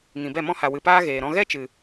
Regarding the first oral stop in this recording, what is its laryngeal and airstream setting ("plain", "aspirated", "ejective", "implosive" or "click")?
plain